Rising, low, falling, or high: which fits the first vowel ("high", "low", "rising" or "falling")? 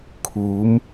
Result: rising